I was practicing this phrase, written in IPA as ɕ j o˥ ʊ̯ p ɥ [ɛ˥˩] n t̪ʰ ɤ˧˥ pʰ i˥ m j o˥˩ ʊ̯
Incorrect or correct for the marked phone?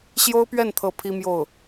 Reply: correct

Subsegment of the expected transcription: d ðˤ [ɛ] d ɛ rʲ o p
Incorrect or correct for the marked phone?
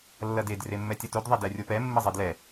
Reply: correct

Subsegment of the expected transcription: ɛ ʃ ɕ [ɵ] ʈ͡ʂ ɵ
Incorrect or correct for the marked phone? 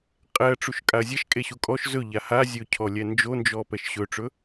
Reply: correct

